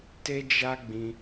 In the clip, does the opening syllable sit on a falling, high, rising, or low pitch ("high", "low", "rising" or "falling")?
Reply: high